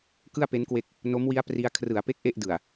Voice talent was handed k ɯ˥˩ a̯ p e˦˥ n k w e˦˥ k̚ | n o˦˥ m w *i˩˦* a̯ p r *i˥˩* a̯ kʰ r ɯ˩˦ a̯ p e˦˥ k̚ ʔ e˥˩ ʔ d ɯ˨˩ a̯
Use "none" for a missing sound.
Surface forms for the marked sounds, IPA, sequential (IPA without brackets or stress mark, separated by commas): i˦˥, i˦˥